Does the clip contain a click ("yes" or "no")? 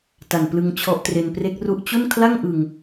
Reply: no